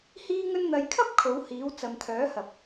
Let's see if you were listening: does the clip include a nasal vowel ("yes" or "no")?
no